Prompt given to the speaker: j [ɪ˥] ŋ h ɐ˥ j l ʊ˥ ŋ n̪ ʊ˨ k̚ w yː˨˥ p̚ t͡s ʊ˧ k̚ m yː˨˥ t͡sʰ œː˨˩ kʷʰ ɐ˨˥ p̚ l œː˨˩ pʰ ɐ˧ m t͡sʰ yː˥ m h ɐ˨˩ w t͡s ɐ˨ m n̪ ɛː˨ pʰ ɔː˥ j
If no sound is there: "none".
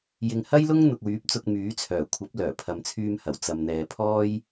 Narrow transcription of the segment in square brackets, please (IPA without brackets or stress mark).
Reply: ɪ˨